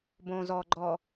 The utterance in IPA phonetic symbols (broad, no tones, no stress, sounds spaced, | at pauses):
b õ z ɔ ɡ͡ǃ ɔ